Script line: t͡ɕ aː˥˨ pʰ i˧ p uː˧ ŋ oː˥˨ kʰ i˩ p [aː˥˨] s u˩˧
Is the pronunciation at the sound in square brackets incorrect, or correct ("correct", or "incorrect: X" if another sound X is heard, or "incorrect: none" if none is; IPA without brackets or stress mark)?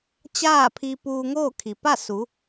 incorrect: a˥˨